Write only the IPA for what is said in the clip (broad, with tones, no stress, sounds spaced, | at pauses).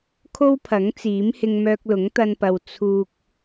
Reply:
kʰ o˥ w pʰ ɐ˨˥ ŋ t͡s iː˨˥ m h ɪ˧ ŋ m œː˧ k̚ l ʊ˨˥ ŋ t̪ ɐ˧ n p ɐ˨ w t͡sʰ uː˨ k̚